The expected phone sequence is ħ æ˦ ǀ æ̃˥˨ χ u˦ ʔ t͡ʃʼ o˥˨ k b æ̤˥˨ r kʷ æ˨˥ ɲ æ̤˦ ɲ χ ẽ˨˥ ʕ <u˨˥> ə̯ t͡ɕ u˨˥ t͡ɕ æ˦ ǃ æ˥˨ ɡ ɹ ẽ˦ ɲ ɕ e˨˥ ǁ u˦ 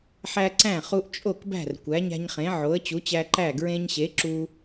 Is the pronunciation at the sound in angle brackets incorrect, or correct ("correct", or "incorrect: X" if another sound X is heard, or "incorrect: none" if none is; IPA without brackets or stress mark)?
incorrect: o˨˥